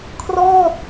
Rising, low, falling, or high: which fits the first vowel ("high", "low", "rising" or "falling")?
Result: falling